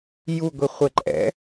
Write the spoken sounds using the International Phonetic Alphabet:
j u ɡʷ i χʷ ɛ ǃʼ ɛ̰

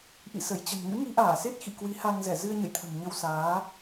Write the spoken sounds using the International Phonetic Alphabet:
ʔ ḭ˧˨ s ə˧˩ j t͡ɕ ə̤˨˩ n ŋ ɨ̰˧˥ ŋ i˨˦ ʔ aː˧˩ s e˦˥ t̚ x ḭ˧˨ k w i˨˦ h a˧ ŋ z ɛ˧˩ z ɨ˧ ə̯ ɲ ə̰˧˨ j t̪ʰ ə̤˨˩ m ɲ ə˧ w s aː˨˦

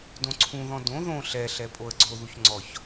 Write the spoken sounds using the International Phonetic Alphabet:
d õ ǀʰ ũ ð ɔ̃ d õ ð õ ɬ ɛ ɬ ɛ pʼ o ə̯ ɡ͡ǀ o ð u ç ŋ͡ǀ ɔ ç

